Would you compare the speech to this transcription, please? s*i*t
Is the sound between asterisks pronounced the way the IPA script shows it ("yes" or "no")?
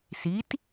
yes